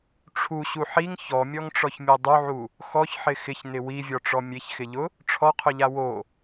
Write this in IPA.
ʈ͡ʂʰ u ɕ u ħ i ŋ ç ɔ mʲ ɔ ŋ ʈ͡ʂ ɔ ç mʲ e dˤ u ʕ u | x ɔ ç ħ ɪ x ɪ ç n ɪ w i vʲ ɔ ʈ͡ʂ ɔ mʲ e ç x ɪ ʎ ʊ | ʈ͡ʂʰ ɔ qʰ ʊ ʎ a w o

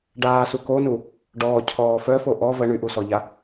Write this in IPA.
ɖ aː s u k o n u | ɖ ɔː cʰ ɔː f œ f o ʔ ɔ v ə ɳ y ʔ u s ɔ ʎ a

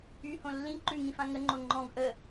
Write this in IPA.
y h õ lː ĩ ǃ ʉ ŋ ĩ f ã ŋ ə ŋ͡ǃ o ŋ͡ǃ ɔ̃ ɡ ʔ ə

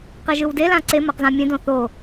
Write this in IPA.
q e ʒ ɯ w d e l ã ǀ e m ʌ q z ã mʲ ẽ d õ θ o

